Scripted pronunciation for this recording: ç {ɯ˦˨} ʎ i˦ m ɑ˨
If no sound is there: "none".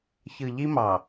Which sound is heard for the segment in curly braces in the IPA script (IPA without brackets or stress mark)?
ɯ˨